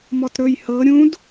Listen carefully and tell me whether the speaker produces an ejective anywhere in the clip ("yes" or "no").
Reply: no